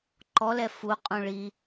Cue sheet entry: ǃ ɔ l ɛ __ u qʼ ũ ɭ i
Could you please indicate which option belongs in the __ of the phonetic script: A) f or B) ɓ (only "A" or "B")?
A